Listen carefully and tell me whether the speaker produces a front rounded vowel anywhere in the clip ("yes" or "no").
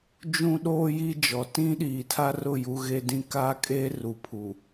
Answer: no